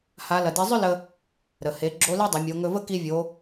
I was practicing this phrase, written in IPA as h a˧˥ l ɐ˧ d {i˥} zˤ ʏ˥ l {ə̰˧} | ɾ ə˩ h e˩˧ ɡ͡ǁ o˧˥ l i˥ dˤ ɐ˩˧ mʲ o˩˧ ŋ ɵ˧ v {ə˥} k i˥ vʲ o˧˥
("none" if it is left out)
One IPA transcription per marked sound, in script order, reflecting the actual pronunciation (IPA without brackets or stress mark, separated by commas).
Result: i˧˥, ə˧, ə˥